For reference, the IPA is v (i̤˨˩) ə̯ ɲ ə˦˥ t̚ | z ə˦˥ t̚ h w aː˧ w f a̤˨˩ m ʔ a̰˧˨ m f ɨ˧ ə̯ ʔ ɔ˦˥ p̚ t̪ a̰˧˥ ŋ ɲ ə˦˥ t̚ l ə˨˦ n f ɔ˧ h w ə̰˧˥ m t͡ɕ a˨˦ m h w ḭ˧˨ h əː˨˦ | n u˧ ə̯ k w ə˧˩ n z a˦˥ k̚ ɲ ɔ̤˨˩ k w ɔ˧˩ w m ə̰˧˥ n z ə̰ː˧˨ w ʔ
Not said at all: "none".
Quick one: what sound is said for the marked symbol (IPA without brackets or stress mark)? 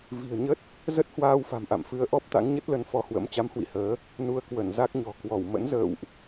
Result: i̤˨˩